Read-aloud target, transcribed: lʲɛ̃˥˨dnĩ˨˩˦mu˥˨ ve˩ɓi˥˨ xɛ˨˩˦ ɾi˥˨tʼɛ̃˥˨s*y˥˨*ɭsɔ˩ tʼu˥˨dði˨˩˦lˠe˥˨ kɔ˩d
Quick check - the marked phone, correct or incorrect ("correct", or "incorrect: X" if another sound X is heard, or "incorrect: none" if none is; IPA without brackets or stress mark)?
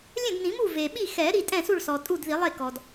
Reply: incorrect: u˥˨